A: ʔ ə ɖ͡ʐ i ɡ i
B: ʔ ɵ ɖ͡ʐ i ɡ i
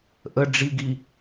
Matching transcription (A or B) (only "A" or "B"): A